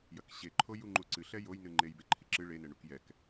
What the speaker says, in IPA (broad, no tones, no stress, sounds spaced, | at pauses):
j ɐ k ɕ e ǃʰ o j u ŋ͡ǃ u ǀ ɨ ɬ ɛ j o j n ɨ ŋ͡ǃ e j b e ǃʰ i ǁ ɨ ɭ e n ɛ ɳ u k j ɛ k